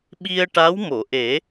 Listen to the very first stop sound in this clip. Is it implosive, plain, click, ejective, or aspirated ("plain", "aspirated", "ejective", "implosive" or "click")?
implosive